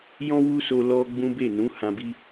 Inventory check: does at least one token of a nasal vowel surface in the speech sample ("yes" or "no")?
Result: yes